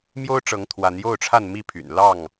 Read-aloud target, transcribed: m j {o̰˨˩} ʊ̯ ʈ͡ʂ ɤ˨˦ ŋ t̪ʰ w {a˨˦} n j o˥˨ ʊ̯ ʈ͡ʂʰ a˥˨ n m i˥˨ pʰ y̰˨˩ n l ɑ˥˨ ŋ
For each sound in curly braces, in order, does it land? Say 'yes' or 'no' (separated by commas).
no, yes